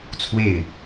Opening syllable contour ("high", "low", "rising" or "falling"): falling